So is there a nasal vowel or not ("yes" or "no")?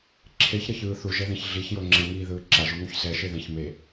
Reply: yes